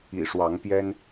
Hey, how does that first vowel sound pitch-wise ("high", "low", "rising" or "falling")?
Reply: low